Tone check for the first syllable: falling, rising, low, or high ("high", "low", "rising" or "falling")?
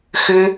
high